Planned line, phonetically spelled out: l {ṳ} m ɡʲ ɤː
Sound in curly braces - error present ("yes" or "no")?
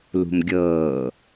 no